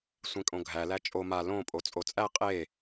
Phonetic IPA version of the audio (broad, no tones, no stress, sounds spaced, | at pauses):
sʷ ẽ kʼ õ ɡʱ æ l æ t͡ʃʼ o m a l õ pʼ o t͡sʼ o t͡sʼ æ qʼ e